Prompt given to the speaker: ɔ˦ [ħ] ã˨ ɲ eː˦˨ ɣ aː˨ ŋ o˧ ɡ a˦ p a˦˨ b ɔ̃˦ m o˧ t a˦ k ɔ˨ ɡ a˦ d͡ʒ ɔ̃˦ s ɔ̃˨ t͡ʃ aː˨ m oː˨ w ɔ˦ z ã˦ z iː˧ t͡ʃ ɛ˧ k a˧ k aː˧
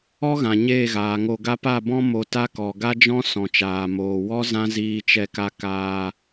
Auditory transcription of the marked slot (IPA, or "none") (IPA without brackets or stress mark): ɣ